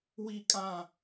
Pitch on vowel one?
falling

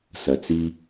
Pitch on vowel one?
low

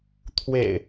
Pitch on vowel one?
low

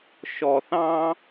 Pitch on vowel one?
low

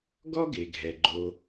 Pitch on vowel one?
high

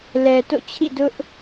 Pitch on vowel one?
low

